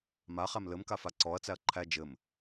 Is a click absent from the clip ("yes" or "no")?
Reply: no